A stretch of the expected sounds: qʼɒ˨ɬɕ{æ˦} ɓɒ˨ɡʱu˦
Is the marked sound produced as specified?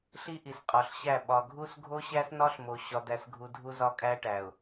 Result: no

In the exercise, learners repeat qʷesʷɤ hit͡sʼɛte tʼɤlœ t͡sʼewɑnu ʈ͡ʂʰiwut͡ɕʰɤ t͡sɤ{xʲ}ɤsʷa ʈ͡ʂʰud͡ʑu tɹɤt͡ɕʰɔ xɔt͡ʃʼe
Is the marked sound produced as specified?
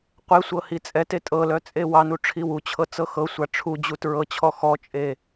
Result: no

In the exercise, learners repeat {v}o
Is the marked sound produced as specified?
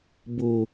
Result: no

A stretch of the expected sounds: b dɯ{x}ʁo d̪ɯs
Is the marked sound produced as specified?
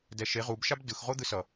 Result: yes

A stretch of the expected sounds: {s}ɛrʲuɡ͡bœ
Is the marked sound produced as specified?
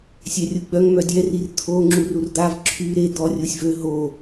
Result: no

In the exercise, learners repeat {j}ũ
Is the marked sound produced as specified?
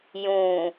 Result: yes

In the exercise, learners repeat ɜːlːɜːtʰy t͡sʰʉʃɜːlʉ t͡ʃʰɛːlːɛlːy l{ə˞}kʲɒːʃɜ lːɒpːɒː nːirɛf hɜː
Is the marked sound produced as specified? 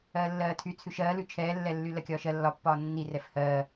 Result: no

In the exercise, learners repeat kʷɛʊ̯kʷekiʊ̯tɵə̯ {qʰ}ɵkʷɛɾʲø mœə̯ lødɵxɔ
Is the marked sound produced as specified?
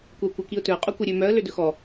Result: no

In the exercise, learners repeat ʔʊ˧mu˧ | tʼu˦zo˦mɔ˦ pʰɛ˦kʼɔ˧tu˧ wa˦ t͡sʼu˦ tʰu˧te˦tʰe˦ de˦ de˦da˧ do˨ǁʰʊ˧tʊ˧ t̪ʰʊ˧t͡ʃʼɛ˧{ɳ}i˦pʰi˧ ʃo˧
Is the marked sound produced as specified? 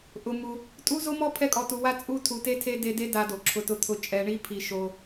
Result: yes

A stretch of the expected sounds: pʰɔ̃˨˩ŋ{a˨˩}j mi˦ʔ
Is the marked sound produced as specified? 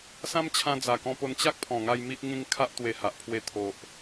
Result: no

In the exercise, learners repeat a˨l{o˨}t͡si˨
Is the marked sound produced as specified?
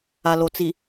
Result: yes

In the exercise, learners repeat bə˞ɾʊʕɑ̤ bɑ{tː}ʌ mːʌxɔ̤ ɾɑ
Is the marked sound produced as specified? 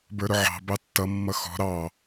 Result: yes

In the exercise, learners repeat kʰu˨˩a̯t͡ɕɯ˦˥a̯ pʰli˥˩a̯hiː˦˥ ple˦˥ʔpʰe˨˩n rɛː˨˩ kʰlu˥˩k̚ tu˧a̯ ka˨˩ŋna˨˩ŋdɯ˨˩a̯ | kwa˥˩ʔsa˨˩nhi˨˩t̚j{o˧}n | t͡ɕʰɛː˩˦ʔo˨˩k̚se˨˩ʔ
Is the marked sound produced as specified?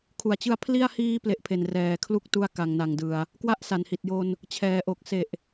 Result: yes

